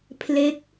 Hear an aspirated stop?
yes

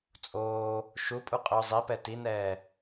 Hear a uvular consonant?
yes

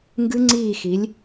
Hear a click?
yes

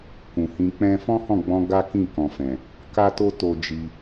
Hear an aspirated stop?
no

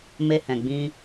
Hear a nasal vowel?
yes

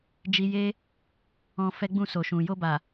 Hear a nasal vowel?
yes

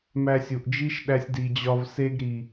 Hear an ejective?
no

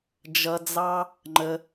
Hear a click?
yes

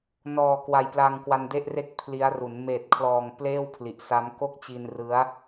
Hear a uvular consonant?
no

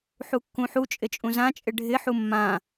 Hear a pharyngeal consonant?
yes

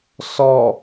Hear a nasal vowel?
no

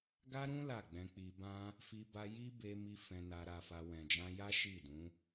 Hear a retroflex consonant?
no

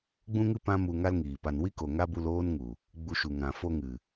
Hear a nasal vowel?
yes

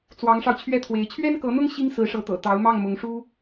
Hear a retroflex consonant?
yes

